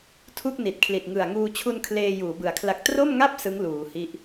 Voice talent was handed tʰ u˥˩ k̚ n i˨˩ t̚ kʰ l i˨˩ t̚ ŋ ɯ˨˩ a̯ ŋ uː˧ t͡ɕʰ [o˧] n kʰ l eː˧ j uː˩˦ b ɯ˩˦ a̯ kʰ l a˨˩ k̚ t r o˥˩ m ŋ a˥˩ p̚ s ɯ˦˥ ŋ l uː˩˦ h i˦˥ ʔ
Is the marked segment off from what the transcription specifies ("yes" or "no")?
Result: yes